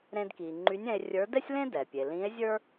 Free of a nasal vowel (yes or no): no